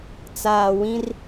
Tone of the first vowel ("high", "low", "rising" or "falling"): low